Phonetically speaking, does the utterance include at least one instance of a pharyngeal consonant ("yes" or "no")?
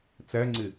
no